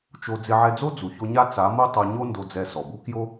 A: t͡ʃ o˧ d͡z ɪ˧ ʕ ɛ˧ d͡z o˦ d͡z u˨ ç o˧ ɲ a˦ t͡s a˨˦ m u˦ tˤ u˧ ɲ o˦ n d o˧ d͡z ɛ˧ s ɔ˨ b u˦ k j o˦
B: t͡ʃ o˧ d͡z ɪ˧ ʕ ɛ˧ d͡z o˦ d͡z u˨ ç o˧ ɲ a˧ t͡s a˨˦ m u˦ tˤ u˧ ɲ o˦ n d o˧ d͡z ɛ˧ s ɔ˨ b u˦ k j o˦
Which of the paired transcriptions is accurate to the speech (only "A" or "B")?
A